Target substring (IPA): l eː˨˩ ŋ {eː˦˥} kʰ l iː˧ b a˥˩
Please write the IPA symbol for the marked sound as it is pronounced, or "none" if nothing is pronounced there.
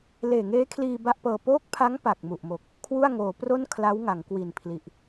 eː˦˥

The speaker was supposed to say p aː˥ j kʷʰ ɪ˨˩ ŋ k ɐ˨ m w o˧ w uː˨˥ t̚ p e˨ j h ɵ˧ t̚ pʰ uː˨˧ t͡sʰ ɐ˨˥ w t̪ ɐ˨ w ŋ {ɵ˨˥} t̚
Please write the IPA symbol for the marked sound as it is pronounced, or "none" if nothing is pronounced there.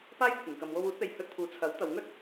ɵ˥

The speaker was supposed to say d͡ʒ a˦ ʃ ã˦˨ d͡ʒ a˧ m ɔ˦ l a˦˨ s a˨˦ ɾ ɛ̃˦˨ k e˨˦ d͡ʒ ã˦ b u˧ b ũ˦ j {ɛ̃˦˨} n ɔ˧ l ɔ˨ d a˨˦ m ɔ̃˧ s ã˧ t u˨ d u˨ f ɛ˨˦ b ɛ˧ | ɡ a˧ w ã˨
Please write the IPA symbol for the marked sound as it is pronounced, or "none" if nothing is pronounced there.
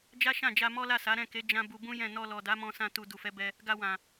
ɛ̃˦˨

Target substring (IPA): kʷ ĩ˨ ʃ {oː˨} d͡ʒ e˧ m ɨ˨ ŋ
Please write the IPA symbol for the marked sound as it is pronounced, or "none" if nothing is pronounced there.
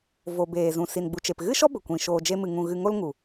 oː˨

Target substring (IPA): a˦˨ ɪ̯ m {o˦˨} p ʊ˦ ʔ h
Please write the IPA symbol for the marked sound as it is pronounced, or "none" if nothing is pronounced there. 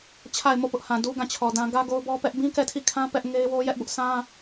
o˦˨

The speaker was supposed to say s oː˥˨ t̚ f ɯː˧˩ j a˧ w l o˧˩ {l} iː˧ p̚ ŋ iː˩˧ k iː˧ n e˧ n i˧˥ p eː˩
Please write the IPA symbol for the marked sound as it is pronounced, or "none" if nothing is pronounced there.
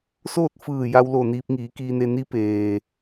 n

